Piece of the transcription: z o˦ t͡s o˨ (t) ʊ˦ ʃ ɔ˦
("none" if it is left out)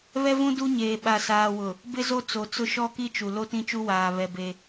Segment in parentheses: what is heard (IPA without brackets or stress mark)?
t͡s